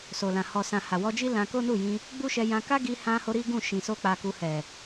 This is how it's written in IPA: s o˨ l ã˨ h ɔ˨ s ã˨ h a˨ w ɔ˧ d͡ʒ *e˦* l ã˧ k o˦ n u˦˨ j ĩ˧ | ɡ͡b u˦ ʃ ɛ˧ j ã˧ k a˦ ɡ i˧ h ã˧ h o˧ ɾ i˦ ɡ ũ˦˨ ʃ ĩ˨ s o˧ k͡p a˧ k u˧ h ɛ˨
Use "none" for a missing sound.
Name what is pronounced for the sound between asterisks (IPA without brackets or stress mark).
i˦